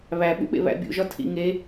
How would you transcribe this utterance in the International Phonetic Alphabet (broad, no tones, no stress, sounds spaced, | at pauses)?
β æ ɓ ṵ ɓ ḛ β æ̰ bʲ ṵ ʒ ɒ tʰ ḭ ŋ e